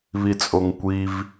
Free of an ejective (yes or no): no